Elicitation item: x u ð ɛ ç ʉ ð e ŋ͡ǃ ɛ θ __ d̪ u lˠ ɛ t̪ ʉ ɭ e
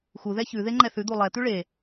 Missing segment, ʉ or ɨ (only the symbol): ʉ